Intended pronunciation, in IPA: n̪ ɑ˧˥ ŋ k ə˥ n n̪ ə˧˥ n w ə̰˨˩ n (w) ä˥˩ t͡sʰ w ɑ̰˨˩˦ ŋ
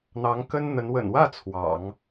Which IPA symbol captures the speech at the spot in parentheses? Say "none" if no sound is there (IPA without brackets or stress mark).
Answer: w